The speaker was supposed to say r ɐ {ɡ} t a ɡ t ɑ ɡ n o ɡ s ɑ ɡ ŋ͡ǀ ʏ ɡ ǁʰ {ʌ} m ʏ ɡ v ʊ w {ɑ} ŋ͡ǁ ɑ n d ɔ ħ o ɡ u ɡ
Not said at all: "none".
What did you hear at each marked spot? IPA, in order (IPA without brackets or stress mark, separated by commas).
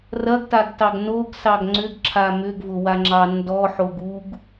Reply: ɡ, a, a